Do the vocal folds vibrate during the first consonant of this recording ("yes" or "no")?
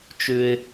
no